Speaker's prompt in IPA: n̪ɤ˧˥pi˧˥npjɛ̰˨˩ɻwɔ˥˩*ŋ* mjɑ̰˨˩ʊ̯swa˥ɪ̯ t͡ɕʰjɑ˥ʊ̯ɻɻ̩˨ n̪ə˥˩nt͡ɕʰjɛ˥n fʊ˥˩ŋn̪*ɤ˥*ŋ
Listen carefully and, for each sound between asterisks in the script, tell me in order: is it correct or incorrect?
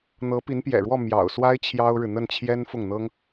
incorrect: none, correct

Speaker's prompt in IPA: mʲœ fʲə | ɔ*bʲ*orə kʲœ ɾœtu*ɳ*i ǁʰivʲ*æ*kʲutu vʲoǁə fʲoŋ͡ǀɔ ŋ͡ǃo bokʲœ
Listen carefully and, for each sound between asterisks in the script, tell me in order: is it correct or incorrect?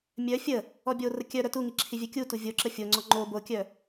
correct, incorrect: ŋ, incorrect: œ

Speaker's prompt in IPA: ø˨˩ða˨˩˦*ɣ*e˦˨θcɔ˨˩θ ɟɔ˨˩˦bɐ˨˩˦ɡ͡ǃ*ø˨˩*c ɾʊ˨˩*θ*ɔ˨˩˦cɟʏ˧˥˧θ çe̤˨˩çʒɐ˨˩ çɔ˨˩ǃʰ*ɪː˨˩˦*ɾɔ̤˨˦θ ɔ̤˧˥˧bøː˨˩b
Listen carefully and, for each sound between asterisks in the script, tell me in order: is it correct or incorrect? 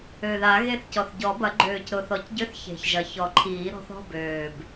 correct, incorrect: øː˨˩, correct, incorrect: iː˨˩˦

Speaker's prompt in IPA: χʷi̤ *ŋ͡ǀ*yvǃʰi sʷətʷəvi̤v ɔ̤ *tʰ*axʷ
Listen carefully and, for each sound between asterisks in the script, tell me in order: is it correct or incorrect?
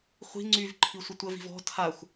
correct, correct

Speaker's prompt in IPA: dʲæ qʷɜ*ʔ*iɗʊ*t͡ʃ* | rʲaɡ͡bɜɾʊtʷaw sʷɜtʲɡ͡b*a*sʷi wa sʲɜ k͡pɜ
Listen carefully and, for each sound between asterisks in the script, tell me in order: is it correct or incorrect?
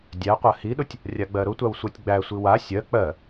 incorrect: h, incorrect: tʲ, incorrect: æ

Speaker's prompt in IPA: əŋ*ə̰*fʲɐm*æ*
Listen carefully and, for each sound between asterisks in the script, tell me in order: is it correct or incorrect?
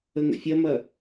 correct, incorrect: ɐ

